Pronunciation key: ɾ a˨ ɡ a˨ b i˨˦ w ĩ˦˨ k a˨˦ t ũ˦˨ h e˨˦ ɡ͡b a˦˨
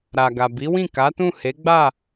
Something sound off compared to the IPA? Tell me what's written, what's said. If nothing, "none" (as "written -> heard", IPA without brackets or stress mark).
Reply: none